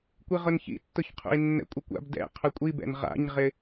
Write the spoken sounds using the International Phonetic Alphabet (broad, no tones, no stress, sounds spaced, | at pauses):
kʷ i ʁ ʊ n ç ḭ tː ʊ ç qʰ ṵ i̯ nː ɛ̰ kʷʼ ɪ kʷ a̰ b d ɛ̰ qʰ ʊ kʷʼ i b ɛ̰ n ʁ a̰ ɲ ʁ ɪ